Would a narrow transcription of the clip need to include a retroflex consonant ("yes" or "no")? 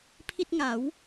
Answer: no